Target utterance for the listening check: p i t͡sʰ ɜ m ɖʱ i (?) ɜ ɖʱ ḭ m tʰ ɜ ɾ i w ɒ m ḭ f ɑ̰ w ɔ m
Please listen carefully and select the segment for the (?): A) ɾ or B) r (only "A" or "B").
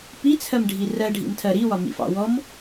B